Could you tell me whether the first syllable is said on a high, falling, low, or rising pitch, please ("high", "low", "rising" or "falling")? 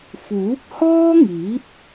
rising